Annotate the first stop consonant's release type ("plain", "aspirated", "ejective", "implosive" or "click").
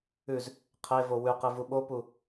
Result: aspirated